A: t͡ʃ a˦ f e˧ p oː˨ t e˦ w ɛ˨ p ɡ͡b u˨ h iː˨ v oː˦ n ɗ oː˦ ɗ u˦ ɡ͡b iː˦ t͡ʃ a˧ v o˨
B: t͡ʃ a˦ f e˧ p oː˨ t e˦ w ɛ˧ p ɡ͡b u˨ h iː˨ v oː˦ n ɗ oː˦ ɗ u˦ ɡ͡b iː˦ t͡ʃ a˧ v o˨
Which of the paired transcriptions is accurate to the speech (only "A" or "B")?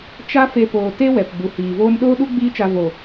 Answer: A